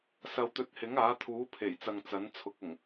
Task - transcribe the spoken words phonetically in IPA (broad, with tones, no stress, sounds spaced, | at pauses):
s ɐ˧ w t̪ ɵ˧ t̚ h ɪ˨˥ ŋ aː˨˥ t̪ʰ uː˨˥ pʰ e˨˩ j t͡s ɐ˨ ŋ t͡s ɐ˨˥ n t͡sʰ ʊ˨˥ k̚ ʊ˨˩ ŋ